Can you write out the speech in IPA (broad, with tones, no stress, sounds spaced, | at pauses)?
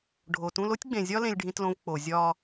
ɖʱ o˨ t ũ˦ l o˦ tʲ ɡ͡b ẽ˨ zʲ ɒ˦ l ẽ˦ lʲ ɖʱ ĩ˦ t l õ˦ v k͡p o˨ zʲ ɒː˨